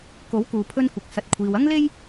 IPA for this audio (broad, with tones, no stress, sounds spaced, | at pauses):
k o˨˥ w k uː˨ pʰ ɵ˧ n kʷ ɪ˨ k̚ s ɐ˨ t̚ kʷʰ iː˨ w ɐ˥ ŋ l e˥ j